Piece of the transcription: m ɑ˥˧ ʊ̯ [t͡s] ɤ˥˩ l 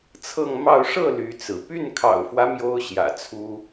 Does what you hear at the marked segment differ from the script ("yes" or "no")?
yes